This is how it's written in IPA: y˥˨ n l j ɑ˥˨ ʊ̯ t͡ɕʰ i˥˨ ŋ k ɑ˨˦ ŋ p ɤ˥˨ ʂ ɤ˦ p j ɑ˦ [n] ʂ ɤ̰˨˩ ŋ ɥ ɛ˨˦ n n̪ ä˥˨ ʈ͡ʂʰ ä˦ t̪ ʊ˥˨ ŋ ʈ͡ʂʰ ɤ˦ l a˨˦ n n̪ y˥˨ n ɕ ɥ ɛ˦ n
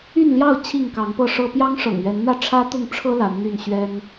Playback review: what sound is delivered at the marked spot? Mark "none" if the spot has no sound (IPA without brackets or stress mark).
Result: ŋ